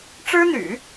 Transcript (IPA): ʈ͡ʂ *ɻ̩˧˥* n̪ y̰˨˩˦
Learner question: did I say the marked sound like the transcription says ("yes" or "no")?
no